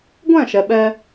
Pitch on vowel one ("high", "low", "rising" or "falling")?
falling